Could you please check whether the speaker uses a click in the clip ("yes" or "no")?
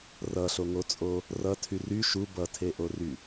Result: no